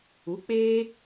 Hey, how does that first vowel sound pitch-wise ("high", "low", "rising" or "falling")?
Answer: rising